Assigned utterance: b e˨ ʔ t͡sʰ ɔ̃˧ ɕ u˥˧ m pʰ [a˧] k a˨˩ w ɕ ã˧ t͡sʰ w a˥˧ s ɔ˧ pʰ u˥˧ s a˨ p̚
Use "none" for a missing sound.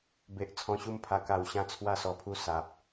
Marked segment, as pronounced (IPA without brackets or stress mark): a˧